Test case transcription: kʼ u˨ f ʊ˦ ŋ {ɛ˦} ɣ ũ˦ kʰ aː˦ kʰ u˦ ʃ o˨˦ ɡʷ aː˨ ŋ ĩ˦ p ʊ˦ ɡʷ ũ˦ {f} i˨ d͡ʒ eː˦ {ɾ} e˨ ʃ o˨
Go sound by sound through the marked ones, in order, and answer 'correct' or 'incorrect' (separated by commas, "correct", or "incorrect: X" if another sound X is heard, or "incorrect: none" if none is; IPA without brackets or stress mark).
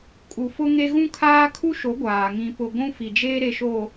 incorrect: e˦, correct, correct